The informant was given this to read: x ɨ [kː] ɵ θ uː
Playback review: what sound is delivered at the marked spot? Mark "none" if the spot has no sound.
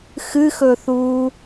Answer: x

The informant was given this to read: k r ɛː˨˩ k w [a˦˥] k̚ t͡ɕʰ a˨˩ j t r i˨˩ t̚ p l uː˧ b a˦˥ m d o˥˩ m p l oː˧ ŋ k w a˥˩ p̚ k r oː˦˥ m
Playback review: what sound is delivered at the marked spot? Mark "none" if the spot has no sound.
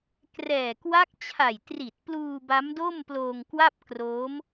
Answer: a˦˥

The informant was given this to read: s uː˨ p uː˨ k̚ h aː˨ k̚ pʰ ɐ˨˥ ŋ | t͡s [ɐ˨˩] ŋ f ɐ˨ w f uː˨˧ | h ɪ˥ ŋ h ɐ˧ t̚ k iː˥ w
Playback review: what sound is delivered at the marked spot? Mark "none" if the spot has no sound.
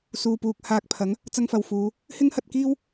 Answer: ɐ˧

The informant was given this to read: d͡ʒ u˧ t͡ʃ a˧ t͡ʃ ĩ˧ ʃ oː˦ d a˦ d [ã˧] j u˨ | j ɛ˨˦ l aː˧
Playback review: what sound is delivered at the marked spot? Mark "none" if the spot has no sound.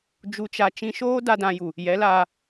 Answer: ã˧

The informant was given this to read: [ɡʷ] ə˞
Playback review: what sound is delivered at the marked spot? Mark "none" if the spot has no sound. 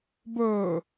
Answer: b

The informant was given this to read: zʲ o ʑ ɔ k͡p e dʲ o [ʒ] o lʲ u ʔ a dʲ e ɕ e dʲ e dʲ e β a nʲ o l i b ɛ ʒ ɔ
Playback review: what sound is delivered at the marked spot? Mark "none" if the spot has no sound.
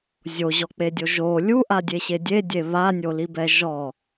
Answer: ʒ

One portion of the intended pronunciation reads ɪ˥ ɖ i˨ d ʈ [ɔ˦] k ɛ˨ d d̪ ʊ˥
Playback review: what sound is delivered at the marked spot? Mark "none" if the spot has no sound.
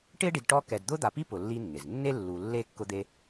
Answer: ɔ˦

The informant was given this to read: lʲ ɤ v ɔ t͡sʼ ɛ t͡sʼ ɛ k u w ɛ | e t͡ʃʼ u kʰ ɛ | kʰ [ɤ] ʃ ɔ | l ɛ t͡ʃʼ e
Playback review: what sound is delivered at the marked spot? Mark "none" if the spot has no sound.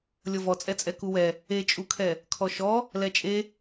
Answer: ɔ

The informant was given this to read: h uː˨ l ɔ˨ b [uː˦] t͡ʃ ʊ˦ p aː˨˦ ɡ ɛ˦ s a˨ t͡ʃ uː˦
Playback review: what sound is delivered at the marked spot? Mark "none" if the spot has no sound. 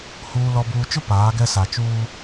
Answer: uː˨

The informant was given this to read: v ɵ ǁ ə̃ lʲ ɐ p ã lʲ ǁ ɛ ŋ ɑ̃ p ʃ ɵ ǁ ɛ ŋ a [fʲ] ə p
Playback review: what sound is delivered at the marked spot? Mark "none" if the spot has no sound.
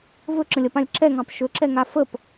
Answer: f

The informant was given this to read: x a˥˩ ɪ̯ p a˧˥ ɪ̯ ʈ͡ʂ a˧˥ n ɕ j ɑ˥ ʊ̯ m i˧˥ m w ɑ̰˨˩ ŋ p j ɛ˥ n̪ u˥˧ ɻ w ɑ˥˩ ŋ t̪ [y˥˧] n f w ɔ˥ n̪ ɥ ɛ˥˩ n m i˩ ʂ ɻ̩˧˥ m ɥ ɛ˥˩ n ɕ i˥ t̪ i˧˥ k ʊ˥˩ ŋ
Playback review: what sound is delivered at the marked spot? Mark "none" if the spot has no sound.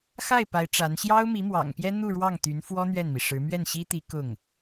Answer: y˧˥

